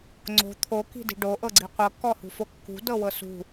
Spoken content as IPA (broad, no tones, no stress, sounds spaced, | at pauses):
ŋ͡ǀ o̤ t̪ʰ o k i̤ d i̤ ɖ o ʔ ɤ ɡ͡ǀ i qʷ ɤ kː ɔ h ṳ f o kː ṳ d ɤ w ɤ s ṳ